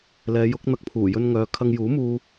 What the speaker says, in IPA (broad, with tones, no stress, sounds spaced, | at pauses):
l ɛː˨˧ j ʊ˨˥ k̚ n̪ ɐ˧ k̚ pʰ uː˨˩ j ɵ˧ n ŋ œː˨˧ kʰ ɐ˧ ŋ j uː˨˥ m uː˧